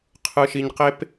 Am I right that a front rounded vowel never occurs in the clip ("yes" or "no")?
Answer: yes